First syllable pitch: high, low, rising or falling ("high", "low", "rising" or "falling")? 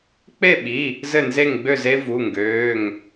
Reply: falling